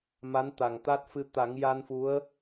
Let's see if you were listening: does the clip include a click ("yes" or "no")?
no